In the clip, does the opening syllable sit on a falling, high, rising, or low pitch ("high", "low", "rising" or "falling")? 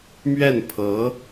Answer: falling